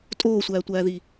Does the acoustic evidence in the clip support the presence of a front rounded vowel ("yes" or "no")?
no